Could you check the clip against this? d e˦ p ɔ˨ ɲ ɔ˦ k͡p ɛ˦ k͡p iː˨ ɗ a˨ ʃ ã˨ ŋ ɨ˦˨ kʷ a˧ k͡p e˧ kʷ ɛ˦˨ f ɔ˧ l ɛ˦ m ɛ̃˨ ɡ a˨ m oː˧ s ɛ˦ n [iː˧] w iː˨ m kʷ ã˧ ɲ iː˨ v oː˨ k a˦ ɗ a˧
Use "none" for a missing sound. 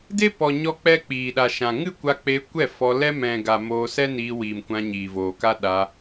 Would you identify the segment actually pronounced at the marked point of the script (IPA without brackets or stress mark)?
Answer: iː˧